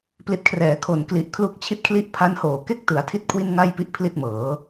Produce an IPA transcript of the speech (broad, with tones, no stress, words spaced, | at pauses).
pli˨˩t̚kʰrɛː˩˦ kʰo˨˩nkli˨˩ʔ kʰlu˦˥k̚t͡ɕʰi˥˩t̚kʰli˥˩ʔ pʰa˦˥nhoː˨˩ ke˥˩k̚tɯ˩˦a̯tʰi˦˥t̚ kʰwi˥˩nŋa˥˩jpi˦˥ʔ pʰli˥˩t̚mɤː˩˦